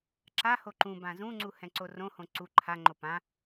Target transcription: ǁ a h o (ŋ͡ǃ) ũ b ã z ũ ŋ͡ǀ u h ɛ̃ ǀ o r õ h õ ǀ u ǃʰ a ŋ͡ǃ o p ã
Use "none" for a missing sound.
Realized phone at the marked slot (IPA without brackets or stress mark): ǃ